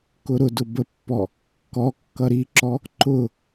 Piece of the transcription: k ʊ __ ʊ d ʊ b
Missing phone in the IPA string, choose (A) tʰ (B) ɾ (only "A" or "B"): B